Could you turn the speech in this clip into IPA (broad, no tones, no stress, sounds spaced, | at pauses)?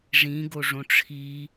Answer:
ʐ ĩ ɡ o ʐ õ ʈ͡ʂʰ i